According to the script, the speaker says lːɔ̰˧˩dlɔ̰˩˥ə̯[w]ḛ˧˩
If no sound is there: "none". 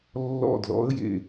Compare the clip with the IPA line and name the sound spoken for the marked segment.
j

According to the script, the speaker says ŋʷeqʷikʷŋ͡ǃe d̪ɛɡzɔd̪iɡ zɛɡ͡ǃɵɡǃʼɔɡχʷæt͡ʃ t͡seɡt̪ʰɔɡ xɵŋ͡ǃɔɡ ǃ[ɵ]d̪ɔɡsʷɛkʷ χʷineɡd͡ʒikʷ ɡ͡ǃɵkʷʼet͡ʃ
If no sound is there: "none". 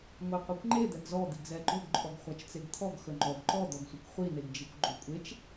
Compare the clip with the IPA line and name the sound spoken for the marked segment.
ɔ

